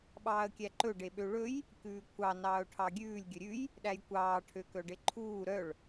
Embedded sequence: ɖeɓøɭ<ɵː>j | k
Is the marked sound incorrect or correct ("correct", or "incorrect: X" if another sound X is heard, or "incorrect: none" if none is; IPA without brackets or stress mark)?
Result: incorrect: ɵ